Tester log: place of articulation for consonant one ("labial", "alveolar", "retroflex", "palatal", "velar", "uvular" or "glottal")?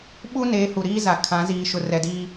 labial